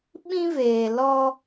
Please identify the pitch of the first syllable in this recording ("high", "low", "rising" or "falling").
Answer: high